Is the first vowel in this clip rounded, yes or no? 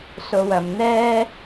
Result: yes